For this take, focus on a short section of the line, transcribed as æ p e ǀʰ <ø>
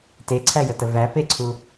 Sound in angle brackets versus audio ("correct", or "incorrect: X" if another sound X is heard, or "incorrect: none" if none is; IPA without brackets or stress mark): incorrect: u